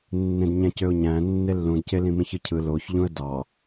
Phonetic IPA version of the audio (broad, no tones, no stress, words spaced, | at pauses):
nːẽdɲæ̃cøʊ̯ɲæ̃ nːelːũdce lĩmĩçɯcʰɯ loç ʎũə̯dɑ